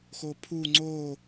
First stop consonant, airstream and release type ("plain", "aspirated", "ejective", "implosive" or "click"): aspirated